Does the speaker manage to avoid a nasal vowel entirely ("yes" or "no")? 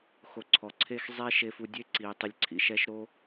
yes